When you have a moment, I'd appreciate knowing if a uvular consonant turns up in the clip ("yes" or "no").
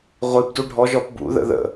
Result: yes